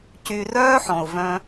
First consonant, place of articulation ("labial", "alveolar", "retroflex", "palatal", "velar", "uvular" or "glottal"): palatal